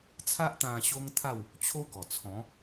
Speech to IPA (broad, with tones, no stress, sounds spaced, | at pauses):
t͡sʰ a˦ ʔ t̪ ã˧ ɕ o˦ ŋ t̪ʰ a˥˧ w | t͡ɕʰ o˦ ɡ ɔ˨˩ t͡sʰ ɔ̃˨˦